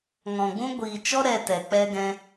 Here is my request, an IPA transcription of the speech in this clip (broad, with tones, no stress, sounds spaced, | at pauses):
ŋ ɔ̃˨ ɡ͡b ũ˦ ɡʷ iː˨ t͡ʃ ɔ˦ ɾ ɛ˧ t ɛ˨ k͡p ɛ˦ ɡ ɛ̃˦